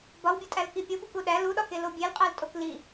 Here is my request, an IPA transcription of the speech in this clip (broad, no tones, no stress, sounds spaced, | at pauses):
b ɒ w bʲ o tʼ æ l k i pʲ o b u k u ɗ æ l u ɗ ɒ k e l o bʲ e l qʼ æ l tʼ o k l i